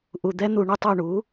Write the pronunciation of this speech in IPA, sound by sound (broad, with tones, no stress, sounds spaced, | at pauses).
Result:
ʔ u˨ d̪ ɛ˦˥ n̪ u˦˨ ɳ ʏ˦˥ tˤ u˦˨ ɳ u˩˥